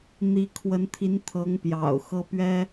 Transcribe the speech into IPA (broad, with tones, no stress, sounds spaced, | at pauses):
n̪ i˧˥ kʰ w ə˧˥ n t̪ʰ i˧˥ n t̪ʰ ɤ˧˥ ŋ p j ɑ̰˨˩ ʊ̯ x ɤ˥ p ɥ ɛ˥